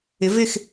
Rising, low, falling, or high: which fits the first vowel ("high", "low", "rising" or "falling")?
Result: rising